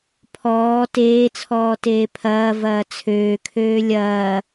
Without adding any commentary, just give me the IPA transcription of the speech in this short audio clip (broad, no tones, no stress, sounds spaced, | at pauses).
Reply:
pʰ ɔː t eː t͡sʰ ɔː t eː pʰ ɐː v ɐː t͡sʰ øː kʰ øː lʲ ɐː